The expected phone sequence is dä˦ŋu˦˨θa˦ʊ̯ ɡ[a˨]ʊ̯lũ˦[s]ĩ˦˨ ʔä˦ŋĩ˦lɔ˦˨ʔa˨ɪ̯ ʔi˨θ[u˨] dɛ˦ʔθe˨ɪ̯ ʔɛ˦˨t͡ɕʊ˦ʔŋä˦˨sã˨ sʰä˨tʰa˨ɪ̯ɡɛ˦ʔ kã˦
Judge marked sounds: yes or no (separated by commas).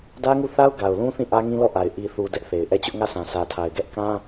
yes, no, yes